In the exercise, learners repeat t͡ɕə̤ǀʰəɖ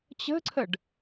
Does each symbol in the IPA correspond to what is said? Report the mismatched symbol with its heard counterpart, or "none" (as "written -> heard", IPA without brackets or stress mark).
none